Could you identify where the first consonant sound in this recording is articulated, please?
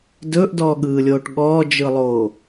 alveolar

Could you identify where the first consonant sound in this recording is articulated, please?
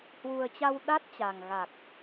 glottal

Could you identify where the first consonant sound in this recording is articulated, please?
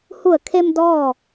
glottal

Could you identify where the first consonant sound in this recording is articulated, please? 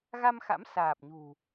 velar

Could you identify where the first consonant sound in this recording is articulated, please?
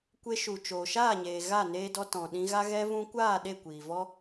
velar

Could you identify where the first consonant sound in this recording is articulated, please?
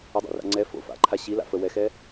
alveolar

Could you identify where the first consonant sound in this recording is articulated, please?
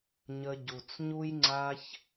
palatal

